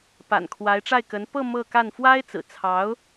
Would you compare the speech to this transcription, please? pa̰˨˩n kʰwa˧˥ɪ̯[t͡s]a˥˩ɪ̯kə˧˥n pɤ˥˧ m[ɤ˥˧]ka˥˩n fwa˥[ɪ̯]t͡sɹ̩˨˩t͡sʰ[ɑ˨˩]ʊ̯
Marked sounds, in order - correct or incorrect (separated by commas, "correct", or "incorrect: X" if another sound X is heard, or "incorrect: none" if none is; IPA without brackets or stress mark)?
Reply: incorrect: ʈ͡ʂ, correct, correct, incorrect: ɑ˧˥